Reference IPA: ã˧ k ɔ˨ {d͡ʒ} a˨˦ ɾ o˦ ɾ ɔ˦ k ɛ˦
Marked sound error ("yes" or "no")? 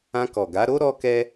yes